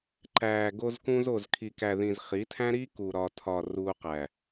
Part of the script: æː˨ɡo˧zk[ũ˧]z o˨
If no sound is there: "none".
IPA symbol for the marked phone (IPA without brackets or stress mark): ũ˧